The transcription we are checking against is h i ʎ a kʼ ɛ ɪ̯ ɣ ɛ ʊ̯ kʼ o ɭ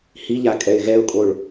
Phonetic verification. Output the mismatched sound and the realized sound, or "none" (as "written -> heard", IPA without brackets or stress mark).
none